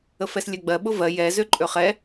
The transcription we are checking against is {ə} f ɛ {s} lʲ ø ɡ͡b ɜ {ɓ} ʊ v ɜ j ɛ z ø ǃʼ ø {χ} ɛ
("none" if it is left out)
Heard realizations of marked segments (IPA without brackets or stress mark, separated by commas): ə, s, ɓ, χ